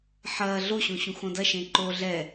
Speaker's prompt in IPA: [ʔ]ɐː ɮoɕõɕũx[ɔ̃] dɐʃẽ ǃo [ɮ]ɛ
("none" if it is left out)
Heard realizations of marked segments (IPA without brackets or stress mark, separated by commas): ħ, õ, ɮ